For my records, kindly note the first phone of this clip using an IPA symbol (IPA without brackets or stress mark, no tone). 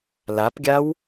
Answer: l